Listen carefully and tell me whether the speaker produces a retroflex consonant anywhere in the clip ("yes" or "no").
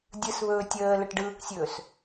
yes